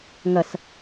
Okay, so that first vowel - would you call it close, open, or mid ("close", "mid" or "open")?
open